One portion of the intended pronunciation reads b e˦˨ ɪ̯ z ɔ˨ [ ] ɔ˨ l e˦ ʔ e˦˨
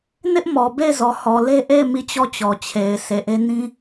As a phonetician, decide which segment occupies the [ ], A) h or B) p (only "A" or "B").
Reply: A